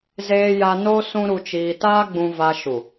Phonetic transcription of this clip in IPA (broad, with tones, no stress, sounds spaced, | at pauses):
z eː˧ j a˧ n o˦ s ũ˦ ɾ u˧ t͡ʃ iː˧ t aː˦ ɡ͡b ũ˧ v a˧ ʃ u˨